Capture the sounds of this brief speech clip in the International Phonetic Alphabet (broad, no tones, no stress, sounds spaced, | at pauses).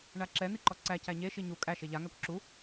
ɳ a ǁ ɛ n̪ i ǃ ɔ ǀ æ c æ ɲ e ʃ i ɲ u kʼ æ ʃ e ʎ a ŋ æ kʷ ǁ u